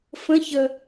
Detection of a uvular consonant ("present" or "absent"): absent